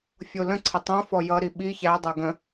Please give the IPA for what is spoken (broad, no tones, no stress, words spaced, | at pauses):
fʲolə̃ǀʰə tˤõfɔ jʌɾi ɓi çædˤɤ ɡə̃